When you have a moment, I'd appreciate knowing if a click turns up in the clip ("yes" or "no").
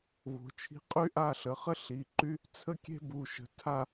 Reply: yes